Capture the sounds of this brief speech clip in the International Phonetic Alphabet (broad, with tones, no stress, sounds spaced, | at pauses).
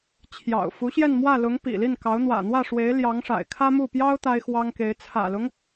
t͡ɕʰ j ɑ̰˨˩ ʊ̯ f u˧˥ ɕ j ɛ˥˧ n m w ä˥˩ l ʊ˧˥ ŋ p ḭ˨˩ l i˥˩ n k ɑ˧˥ ʊ̯ n̪ w ä̰˨˩ n̪ w ä˥˩ ʂ w e˧˥ ɪ̯ l j ɑ˧˥ ŋ ʂ a̰˨˩ ɪ̯ kʰ ä˥ m u˥˩ p j ɑ˥ ʊ̯ t̪ a˥ ɪ̯ x w ɑ˥ ŋ k e˧˥ ɪ̯ t͡sʰ ä̰˨˩ l ʊ˦ ŋ